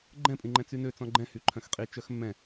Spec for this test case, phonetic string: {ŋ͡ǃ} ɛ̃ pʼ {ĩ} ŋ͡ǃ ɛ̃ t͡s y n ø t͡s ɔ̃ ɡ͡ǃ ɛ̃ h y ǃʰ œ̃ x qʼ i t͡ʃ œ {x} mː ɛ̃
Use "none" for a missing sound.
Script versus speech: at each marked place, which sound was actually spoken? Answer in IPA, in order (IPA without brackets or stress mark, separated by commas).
ɡ͡ǃ, ĩ, x